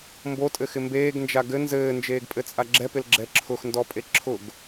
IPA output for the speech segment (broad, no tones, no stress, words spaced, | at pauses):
mbotʼɘxɪ mbeːɡnd͡ʒa ɡɘ nzɘːnd͡ʒeːɡpʼɘt͡sʼa ɡ͡ǁɛpɪlɡ͡ǁɛ ǁʰʊxndɔpʼe ǁʰʊɡ